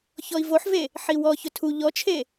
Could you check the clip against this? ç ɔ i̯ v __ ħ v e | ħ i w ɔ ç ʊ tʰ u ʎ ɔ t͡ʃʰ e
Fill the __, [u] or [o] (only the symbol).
o